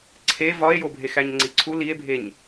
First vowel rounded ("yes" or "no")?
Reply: no